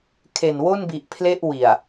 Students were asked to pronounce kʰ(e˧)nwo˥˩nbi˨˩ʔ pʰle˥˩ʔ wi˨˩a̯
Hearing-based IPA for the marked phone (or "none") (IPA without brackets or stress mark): e˨˩